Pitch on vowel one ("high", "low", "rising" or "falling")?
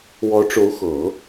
rising